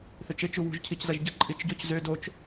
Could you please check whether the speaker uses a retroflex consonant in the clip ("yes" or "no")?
no